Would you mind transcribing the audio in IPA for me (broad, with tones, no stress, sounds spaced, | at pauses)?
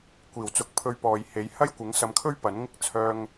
kʷ iː˨˩ w t͡s ʊ˨ k̚ pʰ ɵ˧ ɥ p ɔː˨ j h e˨˥ j h ɐ˥ j kʷ ɪ˨˥ ŋ s ɐ˧ m kʰ ɵ˥ ɥ p ɐ˨˥ n ŋ ɪ˥ k̚ t͡sʰ œː˧ ŋ